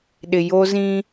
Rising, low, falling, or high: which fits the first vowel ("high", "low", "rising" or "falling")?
low